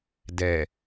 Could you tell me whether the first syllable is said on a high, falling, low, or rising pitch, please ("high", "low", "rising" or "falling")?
low